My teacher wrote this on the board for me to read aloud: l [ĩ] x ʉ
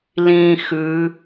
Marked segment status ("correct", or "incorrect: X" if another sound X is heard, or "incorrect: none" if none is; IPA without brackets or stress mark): correct